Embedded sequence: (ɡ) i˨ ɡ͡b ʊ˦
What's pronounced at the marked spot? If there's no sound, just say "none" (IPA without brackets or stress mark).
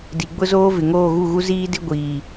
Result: d